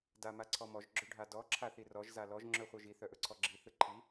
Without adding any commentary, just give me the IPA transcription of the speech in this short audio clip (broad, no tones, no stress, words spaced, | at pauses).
damaǀʰɔmɔʒ ɡ͡ǁɵɖʱadɔ ǁʰaθirɔʒ zalɔʒ ŋ͡ǁœχʷœʒi θœʔɵǀʰɔɡ͡ǁi θɯǃʰi